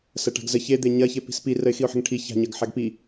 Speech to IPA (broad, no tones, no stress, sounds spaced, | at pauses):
s ɐ ʈ a̤ ɡ z ə ç e d̪ e ɲ ɐ ç e p i̤ s p i r ə ɪ̯ x i ʊ̯ ħ ə̤ ŋ ʈʰ i ç a̤ ɲ ɐ ɡ ħ a ɡ p i